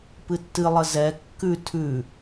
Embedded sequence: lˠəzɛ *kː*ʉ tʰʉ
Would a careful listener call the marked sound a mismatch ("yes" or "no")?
no